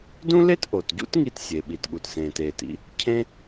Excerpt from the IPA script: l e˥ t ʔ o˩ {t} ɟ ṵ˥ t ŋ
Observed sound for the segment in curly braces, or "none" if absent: t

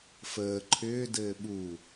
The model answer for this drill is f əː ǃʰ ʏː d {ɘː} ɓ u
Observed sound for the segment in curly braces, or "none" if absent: ɘː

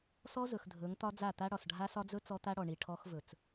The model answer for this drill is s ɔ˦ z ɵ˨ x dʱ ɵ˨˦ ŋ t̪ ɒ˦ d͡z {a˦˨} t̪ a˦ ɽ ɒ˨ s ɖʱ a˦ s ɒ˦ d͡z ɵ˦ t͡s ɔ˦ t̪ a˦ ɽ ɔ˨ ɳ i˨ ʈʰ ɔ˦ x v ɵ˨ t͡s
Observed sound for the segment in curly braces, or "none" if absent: a˦˨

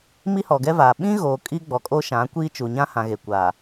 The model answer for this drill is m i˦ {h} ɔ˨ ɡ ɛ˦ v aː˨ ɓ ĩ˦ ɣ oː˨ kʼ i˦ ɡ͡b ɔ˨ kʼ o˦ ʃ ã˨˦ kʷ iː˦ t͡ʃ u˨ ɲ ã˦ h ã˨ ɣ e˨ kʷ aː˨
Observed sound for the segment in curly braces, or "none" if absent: h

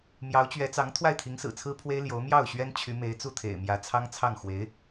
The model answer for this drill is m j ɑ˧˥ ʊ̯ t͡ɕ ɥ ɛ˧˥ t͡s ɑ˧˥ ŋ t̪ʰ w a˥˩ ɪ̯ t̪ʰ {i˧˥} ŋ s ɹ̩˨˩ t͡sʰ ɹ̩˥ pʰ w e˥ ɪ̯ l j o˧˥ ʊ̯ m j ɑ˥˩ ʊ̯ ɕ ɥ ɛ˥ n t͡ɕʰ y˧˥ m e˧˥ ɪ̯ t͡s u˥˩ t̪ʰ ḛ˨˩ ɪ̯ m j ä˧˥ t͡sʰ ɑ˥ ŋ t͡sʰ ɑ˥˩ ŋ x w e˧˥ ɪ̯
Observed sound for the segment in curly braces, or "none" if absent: i˧˥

